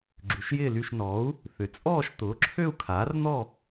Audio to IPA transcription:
ɡ͡ǁy˨˥ʃjɪː˥˧ly˥˧ʃ nɔ˨˥u̯ | θʏ˨˥t͡sʼɔː˥˧ʃ t̪ʊː˨˥ǁʰø˥˧u̯kʰaː˨˥rn̪ɔ˥˧

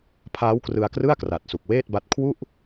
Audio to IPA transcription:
pʰaː˦˥wkrɯ˧a̯krɯ˥˩a̯kra˨˩t̚ su˨˩k̚weː˥˩t̚ba˦˥t̚ kʰwu˥˩ʔ

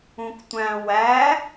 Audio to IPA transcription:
ũktʷæ̃ wæ

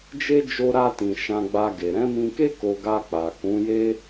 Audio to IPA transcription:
d͡ʒe˦ d͡ʒo˧ɾa˧tĩ˨ ʃã˧ɡ͡ba˧ɡe˨ ɾɛ̃˨˦mĩ˧ke˦ ko˧ɡa˧k͡pa˨ kũ˨˦je˦

